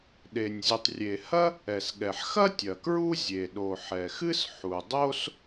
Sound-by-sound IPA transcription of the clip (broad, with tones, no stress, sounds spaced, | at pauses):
ɗ e˩ nʲ zʲ u˩ tˤ rʲ e˩ h ɐ˥ | ɛ˩ s ɠ ɛ˩ ħ x ɐ˥ tʲ ɐ˩ k ɹ u˥ zʲ e˩ ɗ o˩ ħ ɛ˩ x ɨ˥ s ħ u˩ dˤ o˥ s